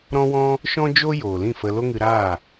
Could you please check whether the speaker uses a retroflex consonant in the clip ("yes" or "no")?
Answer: no